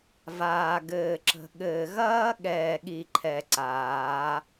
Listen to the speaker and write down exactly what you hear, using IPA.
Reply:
v aː˨ ɡ ɘː˨ ǁ ə̤˨ ɠ ɘː˨ ɣ ɐː˦ ɠ ɛː˨ ɠ i˨ ǃʰ ɛ˨ ǀ aː˨˦

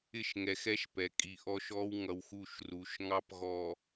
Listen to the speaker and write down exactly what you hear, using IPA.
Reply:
ɪ˦˨ ʃ ŋ ɛ˨ x ɛ˦ ʃ p ɛ˨ kʼ i˨ ʔ ɔ˦ ʃ ɔ˦ w ŋ ʌ˨ w x u˦˨ ʃ r u˨ ʃ ŋ ɑ˦ p ɣ ɔ˨

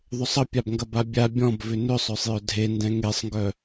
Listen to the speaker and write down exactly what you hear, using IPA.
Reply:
ðˤ ʏ sˤ ə pʲ a b ŋ ɡ ɐ b a bʲ a bʲ ɔ̃ b v ʏ n ʏ sˤ œ sˤ j œ dʱ e n d ɛ̃ ŋ e sˤ ŋ ɡ œ

